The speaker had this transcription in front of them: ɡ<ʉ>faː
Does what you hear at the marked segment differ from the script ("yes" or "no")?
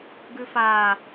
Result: no